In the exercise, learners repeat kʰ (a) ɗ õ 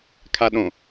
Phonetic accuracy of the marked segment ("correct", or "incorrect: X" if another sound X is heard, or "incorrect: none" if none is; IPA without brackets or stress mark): correct